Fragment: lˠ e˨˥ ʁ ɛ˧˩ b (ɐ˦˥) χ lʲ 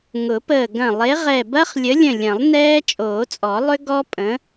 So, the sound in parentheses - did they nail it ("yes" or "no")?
yes